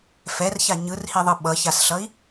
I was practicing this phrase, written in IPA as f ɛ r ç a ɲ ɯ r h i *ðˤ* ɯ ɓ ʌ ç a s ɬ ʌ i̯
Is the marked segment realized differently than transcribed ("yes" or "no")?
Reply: no